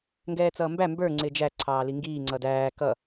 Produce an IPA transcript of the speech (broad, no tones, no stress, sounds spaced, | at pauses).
ŋ ɡ ɛː t͡s ʌː m b æ m b ə˞ ŋ͡ǀ ɪː d͡ʒ æ ǀʰ ɑː l i ŋ ɡ iː ŋ͡ǀ ʌ d æː k ʌ